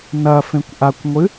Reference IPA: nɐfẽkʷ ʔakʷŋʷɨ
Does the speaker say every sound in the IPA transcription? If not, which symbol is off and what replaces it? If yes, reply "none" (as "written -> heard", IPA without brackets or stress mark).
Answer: none